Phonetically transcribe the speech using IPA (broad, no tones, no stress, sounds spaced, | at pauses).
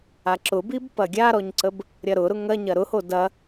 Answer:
a ǁ ʊ b i b p ɐ ɡʲ a ɾ ɔ ɲ ǀ ə b | ɾʲ ɐ ɾ ʊ ɾ ʊ ŋ ɐ ɲ ɐ ɾ ʊ h o d ɐ